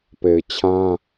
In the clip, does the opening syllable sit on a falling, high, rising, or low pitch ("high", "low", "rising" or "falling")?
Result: low